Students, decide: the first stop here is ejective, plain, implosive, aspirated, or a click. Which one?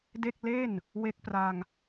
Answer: plain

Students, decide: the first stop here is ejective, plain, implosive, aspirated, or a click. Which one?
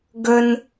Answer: plain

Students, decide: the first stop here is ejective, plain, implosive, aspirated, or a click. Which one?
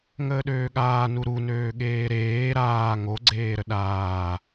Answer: implosive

